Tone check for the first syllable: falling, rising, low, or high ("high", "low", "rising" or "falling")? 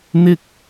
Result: high